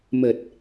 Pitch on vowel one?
low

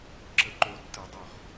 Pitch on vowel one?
low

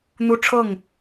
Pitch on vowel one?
high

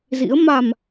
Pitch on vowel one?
rising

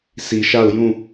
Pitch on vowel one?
low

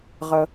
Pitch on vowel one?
low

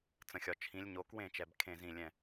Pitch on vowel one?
low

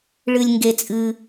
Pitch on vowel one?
low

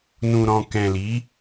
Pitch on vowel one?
low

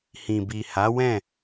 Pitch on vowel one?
low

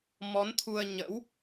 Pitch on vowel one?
rising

